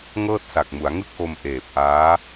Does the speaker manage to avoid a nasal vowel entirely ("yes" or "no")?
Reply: yes